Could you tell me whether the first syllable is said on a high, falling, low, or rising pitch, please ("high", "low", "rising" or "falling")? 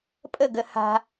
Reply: falling